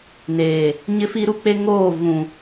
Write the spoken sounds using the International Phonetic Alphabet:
n eː˨ | ɲ ɪ˦ f i˦ ɾ u˦ k͡p e˦ ŋ oː˦˨ v ũ˨

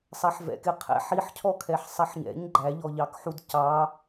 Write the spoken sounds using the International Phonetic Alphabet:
sˤ ɛ ħ v ɛ̰ k ɪ qʰ ɛ̰ ħ i ħ cʰ ɔ kʰ ɛ ħ sˤ ɛ ħ ɲ ɛ̰ ɲ ɡ͡ǃ æ ʎ ɔ ʎ ɑ k ħ u d c ɑ

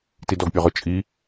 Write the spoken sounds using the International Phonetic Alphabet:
t i d ɔ ɡ pʲ ɔ ʁ ʊ t͡ʃʼ i

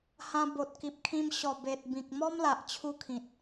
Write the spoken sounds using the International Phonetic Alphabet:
h ã˧ b o˨ t̚ k i˨ p̚ kʰ ĩ˧ m ɕ ɔ˨˩ b e˨ t̚ b ĩ˨ k̚ m ɔ˦ m l a˨ ʔ t͡ɕʰ u˧ kʰ ĩ˨ t̚

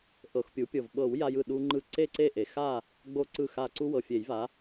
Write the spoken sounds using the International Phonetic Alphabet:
ʔ ɤ˨˩˦ x pʲ u˩˥ pʲ ɤ˧˩ v ɓ ɤ˨˩˦ w j a˦ j ɯ˧˩ ɗ u˦ ŋ͡ǃ ɯ˧˩ ǀ e˥˨ ǀ e˥˨ ʔ e˩ x a˥˨ | ɡ͡b o˥˨ ǀ ɯ˥˨ x a˧˩ ǀ u˦ w ɤ˩ fʲ e˨˩˦ j v a˩˥

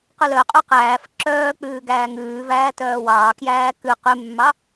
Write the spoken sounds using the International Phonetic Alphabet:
q ʉ l œ qʼ ø q æː f ǁ œː k͡p ʉː ɡ æː ŋ ʉː v æː t œː w ɑː k j æː k ʉ q ʉ mː ɑ

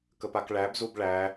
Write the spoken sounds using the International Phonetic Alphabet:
k ə p a k ɭ æ b z u b ɭ æ

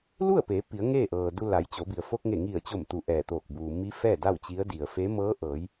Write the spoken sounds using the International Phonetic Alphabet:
l u˥˨ ə̯ p eː˩˧ p i˩˧ ə̯ ŋ eː˥˨ ʔ ɤː˩ d u˧ l a˩˧ j t͡ɕ o˩˧ b i˩ ə̯ f o˧ k̚ ŋ e˧˩ ŋ i˧˩ ə̯ t͡ɕ o˧˩ m t̪ u˧˩ ʔ ɛː˧˩ t̪ oː˧˩ k̚ b uː˩ m i˧˥ f ɛː˥˨ d a˥˨ w t͡ɕ i˧˥ ə̯ d i˩ ə̯ f e˧˥ m ɤː˧˥ ʔ ɤː˩˧ j

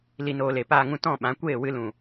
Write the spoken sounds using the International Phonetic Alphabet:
l i˨ n oː˨ l e˨ p aː˨ ŋ ũ˨ t ɔ̃˦˨ ɓ ã˨˦ kʷ eː˦˨ w ɨ˧ l ũ˨

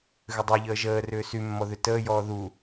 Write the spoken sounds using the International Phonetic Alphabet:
ɣ ʏ dˤ u ʎ əː ʒ əː r ʏː s y mː ɔ ð ʏ t əː j ɔː ð u

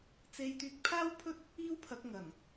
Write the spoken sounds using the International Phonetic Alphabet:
t͡s e˧ j t̪ yː˧ k̚ pʰ aː˥ w pʰ ɵ˥ t̚ | iː˥ w pʰ ɐ˨˥ k̚ ŋ ɐ˨˩ n

